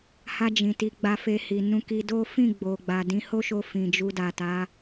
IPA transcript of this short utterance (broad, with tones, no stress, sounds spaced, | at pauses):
h a˧ d͡ʒ ĩ˨ t i˨˦ ɡ͡b a˧ f e˧ h i˨ n ũ˧ k i˧ d o˦ f ĩ˦˨ ɡ͡b o˨ ɡ͡b a˨ d ĩ˨˦ h o˦ ʃ o˧ f ĩ˨ d͡ʒ u˧ d a˨ t a˨˦